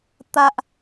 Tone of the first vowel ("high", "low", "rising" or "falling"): high